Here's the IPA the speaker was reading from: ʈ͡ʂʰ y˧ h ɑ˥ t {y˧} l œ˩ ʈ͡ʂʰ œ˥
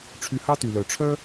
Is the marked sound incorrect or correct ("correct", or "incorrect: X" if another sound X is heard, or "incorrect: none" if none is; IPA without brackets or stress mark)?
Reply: incorrect: y˩